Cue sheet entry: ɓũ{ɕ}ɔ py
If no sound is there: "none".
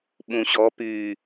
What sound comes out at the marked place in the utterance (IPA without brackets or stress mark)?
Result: ɕ